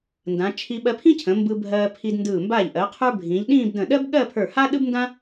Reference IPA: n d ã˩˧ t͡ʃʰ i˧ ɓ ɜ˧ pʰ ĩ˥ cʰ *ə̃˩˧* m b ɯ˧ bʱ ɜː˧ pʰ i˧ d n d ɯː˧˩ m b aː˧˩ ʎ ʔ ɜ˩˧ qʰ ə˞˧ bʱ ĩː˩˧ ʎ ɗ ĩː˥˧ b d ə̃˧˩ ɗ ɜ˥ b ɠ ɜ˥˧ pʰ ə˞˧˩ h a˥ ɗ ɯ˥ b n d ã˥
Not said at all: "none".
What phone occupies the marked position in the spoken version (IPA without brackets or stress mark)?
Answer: ə̃˩˧